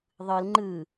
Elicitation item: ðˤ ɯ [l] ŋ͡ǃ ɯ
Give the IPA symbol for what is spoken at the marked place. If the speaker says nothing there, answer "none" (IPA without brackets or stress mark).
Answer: l